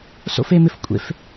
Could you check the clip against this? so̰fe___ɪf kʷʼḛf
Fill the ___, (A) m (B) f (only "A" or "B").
A